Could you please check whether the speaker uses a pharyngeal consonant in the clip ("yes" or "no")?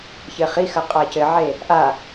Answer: yes